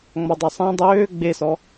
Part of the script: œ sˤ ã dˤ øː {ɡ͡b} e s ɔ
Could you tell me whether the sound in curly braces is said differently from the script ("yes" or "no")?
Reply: no